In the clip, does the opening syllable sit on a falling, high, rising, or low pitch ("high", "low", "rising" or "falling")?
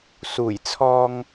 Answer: low